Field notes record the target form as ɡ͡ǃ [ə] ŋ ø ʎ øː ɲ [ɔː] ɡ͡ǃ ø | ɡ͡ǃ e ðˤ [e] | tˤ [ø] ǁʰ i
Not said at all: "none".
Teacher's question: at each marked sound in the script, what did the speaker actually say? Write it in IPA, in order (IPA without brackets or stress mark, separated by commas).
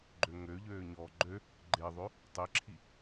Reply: ø, ɔː, ø, e